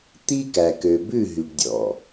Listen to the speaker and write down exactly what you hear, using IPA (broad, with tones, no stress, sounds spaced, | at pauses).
t̪ i˦ k æ˨ k ø˨ b ʉ˦˨ ɦ y˨ ɖ dʲ ɔ̰˨